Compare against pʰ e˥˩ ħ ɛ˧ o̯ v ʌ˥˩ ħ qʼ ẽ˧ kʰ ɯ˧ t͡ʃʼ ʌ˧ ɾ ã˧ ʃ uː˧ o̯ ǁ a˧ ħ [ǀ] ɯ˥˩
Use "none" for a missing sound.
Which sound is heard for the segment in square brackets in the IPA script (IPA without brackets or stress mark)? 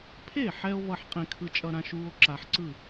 ǀ